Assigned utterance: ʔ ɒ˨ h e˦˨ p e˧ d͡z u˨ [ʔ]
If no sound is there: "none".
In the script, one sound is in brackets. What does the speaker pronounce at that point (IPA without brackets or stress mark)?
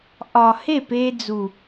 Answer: none